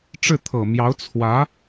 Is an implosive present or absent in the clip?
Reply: absent